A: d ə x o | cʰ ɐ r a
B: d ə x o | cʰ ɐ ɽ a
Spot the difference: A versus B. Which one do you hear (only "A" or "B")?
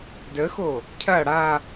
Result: B